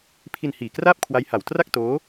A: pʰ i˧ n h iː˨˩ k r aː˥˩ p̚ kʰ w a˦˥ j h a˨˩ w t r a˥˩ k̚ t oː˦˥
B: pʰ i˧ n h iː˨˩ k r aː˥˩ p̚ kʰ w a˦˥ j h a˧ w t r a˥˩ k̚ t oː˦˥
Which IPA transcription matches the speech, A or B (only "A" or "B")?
A